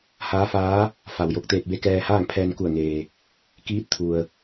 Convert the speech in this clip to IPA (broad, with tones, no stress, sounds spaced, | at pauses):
h aː˧˥ f aː˧˥ | f a˩ w j o˧˩ k̚ t̪ eː˧ t̚ b e˧˥ k ɛː˧ h aː˥˨ ŋ pʰ ɛː˧ n k u˧˩ ə̯ ŋ eː˩ | k iː˧˥ t̚ t̪ʰ u˩ ə̯